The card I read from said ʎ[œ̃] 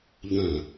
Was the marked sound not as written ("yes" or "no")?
no